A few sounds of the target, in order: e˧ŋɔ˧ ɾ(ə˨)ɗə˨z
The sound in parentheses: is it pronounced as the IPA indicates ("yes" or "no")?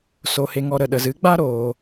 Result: yes